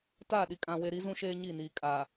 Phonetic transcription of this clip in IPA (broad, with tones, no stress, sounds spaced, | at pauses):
t aː˦˨ ɗ i˨ kʼ ã˨ w e˨ ɾ i˨˦ z ũ˦ ʃ eː˦ ɲ i˦˨ n iː˨ kʼ a˨